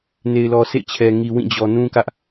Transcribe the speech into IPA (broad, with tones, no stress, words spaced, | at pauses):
ne˨ɪ̯lɔ˨sḛ˦˨t͡ɕʰɛ˨ ŋi˨wĩ˦˨d͡ʑɔ˨ nũ˦kä˦ʔ